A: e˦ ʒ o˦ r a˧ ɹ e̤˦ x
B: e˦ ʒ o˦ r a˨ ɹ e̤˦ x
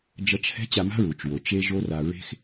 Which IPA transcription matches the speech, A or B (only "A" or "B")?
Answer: A